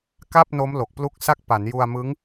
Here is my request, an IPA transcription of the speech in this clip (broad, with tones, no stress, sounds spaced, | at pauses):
k a˥˩ p̚ n o˦˥ m l o˨˩ k̚ p l u˦˥ k̚ s a˥˩ k̚ p a˩˦ n j u˧ a̯ m ɯ˦˥ ŋ